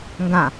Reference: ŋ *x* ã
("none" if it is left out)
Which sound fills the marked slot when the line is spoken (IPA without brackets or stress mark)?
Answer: ɡ